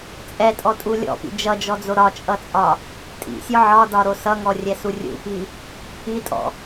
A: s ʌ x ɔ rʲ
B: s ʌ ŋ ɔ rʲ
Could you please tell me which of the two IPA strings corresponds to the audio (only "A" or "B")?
B